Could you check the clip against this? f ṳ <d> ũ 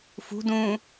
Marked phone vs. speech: correct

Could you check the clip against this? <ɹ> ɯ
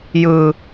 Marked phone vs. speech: incorrect: j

